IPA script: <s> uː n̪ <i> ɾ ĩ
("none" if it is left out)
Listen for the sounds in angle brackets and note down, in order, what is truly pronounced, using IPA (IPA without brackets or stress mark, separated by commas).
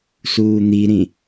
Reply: s, i